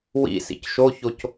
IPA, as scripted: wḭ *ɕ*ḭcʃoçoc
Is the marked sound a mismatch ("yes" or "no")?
yes